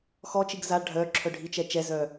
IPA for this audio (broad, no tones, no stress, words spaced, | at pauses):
xɔt͡ʃiɡ za ɖʱœǁʰœ ɖʱit͡ʃɛ t͡ʃɛzœ